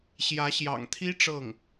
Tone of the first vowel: rising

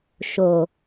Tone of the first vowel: low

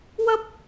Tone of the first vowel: high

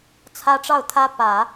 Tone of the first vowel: high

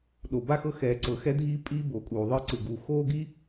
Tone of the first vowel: low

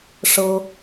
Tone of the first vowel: high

